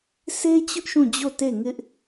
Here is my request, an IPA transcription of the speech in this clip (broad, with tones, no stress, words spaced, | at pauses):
se˦t͡ɕʊ˦ʔ ʃũ˦˨d͡ʑo˦˨ te˦˨ŋɪ˦ʔ